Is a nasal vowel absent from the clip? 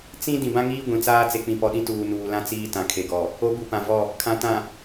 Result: no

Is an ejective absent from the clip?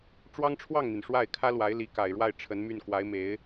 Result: yes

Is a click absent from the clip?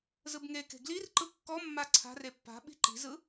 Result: no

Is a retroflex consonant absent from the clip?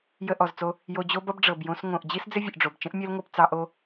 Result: no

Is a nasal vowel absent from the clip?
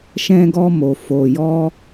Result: no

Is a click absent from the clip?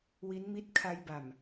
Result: yes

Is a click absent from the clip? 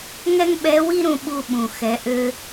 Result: yes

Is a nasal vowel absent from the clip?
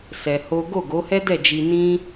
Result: no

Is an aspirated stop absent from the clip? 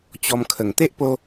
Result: no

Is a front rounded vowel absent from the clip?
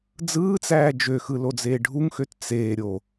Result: no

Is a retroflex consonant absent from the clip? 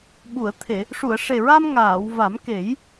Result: no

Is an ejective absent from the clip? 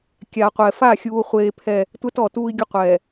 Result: yes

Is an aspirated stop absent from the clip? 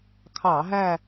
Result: no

